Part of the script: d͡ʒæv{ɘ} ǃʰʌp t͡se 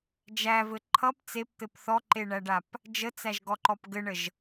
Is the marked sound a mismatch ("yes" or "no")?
no